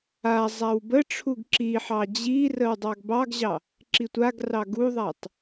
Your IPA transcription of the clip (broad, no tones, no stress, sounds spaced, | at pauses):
a zˤ a w b ə ʈ͡ʂʰ u ɡ ǁ i ħ ɑ d͡ʑ i r ə w dˤ ɑ ɡ b ɑ ɡ ʑ ɑ | ǁ i tʷ a ɡ r ɑ ɡ u ðˤ a tˤ